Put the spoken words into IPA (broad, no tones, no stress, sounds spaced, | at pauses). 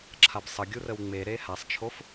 ǁʰ a b sˤ ə ɡʲ u r ə w ŋ͡m e ɾ e h a sˤ t͡ʃʰ o f